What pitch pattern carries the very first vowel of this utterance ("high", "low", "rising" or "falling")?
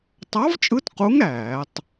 rising